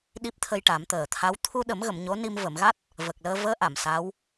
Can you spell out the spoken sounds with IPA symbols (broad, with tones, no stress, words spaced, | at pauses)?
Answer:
ɗi˦˥p̚t̪ʰə˧jʈa˨˩˦m t̪əː˨˩t̪ʰa˧˥w t̪ʰu˧ɗə˨˩˦mɣə˨˩˨m ɲo˧˥ni˧m və˨˩˨mɣa˦˥t̚ | və˨˩k̚ləː˧ vəː˧˥ ʔa˨˩˨msa˧˥w